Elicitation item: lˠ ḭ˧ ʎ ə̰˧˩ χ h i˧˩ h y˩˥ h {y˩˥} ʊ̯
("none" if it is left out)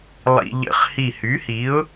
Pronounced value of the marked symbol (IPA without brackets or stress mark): i˩˥